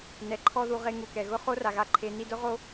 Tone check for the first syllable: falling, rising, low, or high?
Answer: low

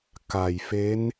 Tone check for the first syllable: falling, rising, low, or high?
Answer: low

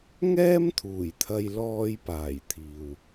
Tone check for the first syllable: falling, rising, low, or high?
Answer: high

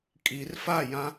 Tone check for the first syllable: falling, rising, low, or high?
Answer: low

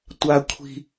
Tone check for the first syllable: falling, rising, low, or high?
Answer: low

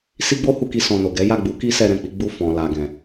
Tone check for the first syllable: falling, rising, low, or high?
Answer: high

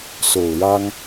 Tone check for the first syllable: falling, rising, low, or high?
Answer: low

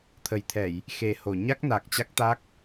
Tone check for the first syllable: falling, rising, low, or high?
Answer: low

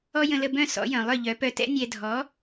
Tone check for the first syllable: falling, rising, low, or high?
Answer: high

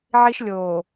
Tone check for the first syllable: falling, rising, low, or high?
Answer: high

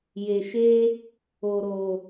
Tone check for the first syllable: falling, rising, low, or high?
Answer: low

